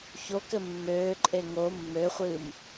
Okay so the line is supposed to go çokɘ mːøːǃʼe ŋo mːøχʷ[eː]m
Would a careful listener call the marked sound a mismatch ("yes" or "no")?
yes